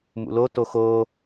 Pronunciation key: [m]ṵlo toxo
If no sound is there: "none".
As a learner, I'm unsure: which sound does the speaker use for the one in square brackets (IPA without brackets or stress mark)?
m